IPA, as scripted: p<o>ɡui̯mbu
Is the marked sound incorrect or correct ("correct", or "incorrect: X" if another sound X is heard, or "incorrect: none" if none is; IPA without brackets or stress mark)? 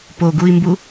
correct